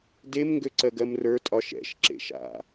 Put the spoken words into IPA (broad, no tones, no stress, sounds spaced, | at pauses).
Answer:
d e m ŋ ɡ ø ǀ ɜ ɡ ɜ m r ə˞ tʼ ɒ ʃ ɛ̰ ʃ ǁ ḛ ʃ a̰